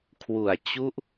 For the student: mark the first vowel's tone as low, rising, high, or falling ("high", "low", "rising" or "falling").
low